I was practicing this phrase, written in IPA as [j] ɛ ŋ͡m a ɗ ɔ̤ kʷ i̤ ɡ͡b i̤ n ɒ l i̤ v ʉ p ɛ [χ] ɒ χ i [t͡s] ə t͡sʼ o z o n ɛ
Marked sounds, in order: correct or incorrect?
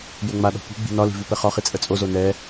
correct, correct, incorrect: t͡sʼ

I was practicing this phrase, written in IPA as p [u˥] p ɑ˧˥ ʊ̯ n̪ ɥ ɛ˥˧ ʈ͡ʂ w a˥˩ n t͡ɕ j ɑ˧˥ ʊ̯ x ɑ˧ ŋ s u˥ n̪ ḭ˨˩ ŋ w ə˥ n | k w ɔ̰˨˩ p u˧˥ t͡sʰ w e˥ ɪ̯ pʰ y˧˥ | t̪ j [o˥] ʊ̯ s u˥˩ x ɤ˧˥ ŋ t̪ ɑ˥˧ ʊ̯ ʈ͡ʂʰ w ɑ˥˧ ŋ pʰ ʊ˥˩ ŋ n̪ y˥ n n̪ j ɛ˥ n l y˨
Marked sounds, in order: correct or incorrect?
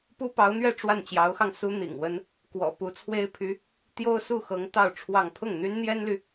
correct, correct

